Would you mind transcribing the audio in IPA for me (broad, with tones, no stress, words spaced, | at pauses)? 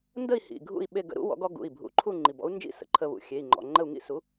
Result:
ndə˥˨i̯ hḭ˩˧˩ ɡʱṵ˥˨i̯ɓe˥˨ɡ ə̰˧ɾṵ˨˥ wɔ̰˨˥ɡɔ˨˥ ɡṵ˩˧˩i̯ bʱṵ˩˧˩ǃʰu˥˨ ŋ͡ǃi˩˧˩bɔ̰˨˥u̯nd͡ʒḭ˥˨ sə̰˩˧˩ǃʰə˧βṵ˩˧˩ xʲe˩˧˩i̯ŋ͡ǃɔ̰˩˧˩ ŋ͡ǃə˥˨u̯ŋḭ˥˨su˨˥